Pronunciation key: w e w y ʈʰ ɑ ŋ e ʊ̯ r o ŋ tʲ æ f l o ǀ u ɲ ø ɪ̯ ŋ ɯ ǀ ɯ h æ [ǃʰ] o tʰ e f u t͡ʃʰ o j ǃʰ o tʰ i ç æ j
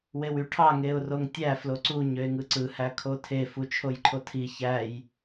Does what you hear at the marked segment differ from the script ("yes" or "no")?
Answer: yes